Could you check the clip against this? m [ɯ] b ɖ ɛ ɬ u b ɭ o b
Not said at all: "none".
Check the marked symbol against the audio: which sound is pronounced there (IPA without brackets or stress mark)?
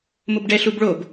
ʊ